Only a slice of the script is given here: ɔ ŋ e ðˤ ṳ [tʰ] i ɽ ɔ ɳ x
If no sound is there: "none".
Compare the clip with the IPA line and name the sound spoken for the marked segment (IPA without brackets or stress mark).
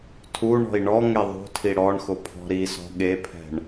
tʰ